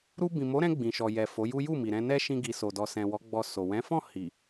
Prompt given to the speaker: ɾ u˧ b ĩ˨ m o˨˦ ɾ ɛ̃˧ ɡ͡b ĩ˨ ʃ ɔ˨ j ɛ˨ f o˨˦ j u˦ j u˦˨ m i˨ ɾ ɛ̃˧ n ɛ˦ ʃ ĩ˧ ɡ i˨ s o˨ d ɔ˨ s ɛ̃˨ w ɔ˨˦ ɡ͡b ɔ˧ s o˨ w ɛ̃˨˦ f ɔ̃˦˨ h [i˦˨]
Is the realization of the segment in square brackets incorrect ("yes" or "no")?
yes